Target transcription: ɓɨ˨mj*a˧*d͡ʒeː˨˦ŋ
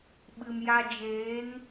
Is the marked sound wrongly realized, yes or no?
no